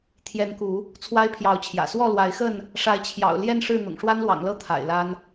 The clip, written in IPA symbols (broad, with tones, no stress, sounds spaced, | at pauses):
t̪ʰ j ɛ˨˦ n k u˨˦ | t͡sʰ w a˦ ɪ̯ pʰ j ɑ˨˦ ʊ̯ t͡ɕʰ j ä̰˨˩ s w ɔ˥˨ l w a˨˦ ɪ̯ x ə˥˨ n | ʂ a˨˦ ɪ̯ t͡ɕʰ j ɑ̰˨˩ ʊ̯ l j ɛ˥˨ n ʂ ɻ̩˥˨ n̪ ʊ̰˨˩ ŋ ʂ w a˦ n l w ɑ̰˨˩ ŋ l ɤ˦ t̪ʰ a̰˨˩ ɪ̯ l a˦ n